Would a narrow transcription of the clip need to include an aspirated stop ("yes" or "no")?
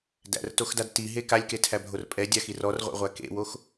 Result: yes